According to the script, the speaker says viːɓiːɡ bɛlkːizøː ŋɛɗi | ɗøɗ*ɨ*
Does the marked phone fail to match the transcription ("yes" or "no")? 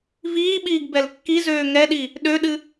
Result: no